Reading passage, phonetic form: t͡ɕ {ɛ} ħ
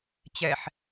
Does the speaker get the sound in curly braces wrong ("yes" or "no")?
no